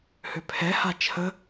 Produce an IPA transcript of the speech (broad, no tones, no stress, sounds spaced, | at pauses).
h ø pʰ ɛ h a t͡ʃʰ ə